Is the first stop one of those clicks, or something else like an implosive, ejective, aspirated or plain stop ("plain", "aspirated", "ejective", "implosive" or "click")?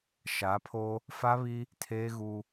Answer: aspirated